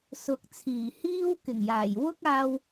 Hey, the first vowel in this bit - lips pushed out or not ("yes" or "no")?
yes